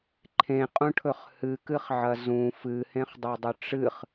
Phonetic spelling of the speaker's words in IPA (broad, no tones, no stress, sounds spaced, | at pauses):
ǃʰ ẽ qʼ ũ ʈʰ ɵ χ h ɨ k ɨ χ ʕ ɐ z ũ f ɨ h ẽ χ dˤ ɨ dˤ ɵ ʈ͡ʂ ɨ χ